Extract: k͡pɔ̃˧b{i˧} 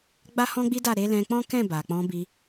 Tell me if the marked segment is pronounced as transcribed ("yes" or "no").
yes